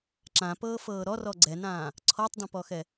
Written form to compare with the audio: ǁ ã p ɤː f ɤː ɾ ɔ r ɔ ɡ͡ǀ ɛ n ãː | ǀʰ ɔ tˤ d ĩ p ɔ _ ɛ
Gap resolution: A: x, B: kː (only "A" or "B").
A